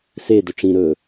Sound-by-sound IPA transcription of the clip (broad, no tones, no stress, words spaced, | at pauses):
se dɵʈ͡ʂĩ ɾɵ